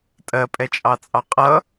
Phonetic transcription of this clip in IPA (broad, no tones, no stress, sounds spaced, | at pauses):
tʼ ɜ pʼ ɛ t͡ʃʼ ɑ t͡sʼ ɑ qʼ ʌ